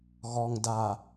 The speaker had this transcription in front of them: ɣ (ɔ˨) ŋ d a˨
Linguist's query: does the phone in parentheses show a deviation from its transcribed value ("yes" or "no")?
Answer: no